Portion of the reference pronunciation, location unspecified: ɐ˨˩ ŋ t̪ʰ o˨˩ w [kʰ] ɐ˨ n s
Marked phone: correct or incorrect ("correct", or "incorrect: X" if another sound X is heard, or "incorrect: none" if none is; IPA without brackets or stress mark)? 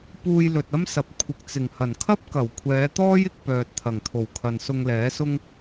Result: correct